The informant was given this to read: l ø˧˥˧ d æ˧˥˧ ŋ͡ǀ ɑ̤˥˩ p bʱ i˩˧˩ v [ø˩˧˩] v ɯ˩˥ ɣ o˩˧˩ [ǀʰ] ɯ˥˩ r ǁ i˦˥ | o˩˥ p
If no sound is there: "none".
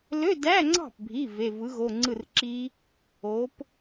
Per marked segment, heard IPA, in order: e˩˧˩, ŋ͡ǀ

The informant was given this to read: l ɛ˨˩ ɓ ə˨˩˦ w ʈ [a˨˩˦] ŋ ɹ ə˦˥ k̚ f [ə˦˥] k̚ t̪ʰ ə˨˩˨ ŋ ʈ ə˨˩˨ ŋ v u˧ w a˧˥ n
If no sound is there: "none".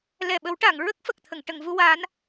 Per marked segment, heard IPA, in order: a˨˩˨, ə˨˩

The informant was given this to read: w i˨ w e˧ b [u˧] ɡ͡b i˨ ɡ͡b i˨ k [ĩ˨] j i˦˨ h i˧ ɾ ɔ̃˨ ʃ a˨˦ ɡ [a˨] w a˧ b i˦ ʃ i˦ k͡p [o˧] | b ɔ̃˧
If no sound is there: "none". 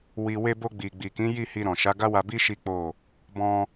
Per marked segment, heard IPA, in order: o˧, ĩ˨˦, a˦, o˦˨

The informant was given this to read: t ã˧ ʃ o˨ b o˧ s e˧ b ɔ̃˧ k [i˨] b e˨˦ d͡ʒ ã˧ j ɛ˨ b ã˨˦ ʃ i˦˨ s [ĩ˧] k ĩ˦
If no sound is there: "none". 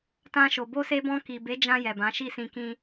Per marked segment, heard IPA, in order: i˨, ĩ˧

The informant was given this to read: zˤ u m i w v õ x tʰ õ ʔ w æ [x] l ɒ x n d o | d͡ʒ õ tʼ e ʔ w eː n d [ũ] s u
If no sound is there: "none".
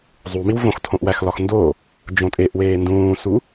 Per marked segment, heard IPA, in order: x, ũː

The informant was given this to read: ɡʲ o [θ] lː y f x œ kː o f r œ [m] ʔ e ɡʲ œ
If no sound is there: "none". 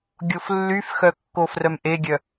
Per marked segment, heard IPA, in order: f, m

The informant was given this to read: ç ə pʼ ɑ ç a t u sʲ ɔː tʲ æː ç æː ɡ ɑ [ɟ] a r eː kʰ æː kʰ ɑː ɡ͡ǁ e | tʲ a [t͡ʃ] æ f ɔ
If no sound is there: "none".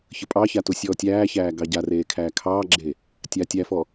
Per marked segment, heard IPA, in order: ɟ, tʲ

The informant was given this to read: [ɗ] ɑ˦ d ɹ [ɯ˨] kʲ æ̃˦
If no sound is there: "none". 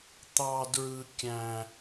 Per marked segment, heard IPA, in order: t̪, ɯ˦

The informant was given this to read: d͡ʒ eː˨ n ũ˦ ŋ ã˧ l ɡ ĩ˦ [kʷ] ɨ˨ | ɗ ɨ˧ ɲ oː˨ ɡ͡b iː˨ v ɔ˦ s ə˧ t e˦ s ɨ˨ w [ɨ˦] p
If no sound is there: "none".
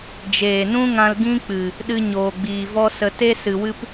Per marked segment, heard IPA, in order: k͡p, ɨ˦

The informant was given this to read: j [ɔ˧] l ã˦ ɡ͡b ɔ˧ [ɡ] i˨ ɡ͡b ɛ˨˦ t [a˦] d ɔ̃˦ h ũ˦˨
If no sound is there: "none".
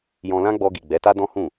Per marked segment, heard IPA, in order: ɔ̃˧, ɡ, a˦

